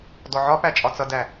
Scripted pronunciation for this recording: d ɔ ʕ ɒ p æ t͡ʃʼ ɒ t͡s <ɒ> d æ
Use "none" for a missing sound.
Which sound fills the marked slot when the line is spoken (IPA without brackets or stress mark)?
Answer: ʌ